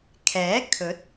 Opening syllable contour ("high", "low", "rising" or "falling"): rising